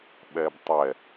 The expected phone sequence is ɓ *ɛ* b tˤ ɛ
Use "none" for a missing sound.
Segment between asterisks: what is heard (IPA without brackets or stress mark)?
ɛ